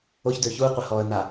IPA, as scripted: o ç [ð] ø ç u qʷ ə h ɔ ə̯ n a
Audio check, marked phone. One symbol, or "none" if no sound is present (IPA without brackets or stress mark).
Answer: d